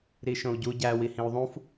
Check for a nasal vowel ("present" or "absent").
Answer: present